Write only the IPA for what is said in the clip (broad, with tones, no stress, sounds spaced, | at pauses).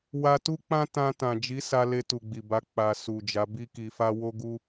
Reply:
w a˧ t u˦ k͡p ã˦ t ã˧ t ã˨ d͡ʒ i˨˦ s a˧ l e˧ t u˨ ɡ͡b i˨ b a˨˦ k͡p a˧ s u˨ d͡ʒ a˨˦ b i˦ k i˧ f a˦ w o˦ ɡ u˦